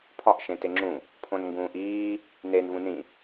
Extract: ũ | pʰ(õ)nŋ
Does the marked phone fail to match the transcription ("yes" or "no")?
no